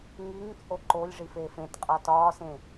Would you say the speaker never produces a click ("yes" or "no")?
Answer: no